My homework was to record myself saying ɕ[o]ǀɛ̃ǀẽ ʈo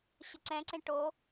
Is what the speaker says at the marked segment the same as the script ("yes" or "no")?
no